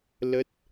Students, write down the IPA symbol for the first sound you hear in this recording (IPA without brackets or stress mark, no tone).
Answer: l